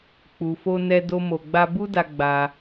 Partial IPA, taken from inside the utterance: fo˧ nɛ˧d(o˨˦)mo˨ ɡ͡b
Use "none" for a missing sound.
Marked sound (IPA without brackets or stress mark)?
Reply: o˧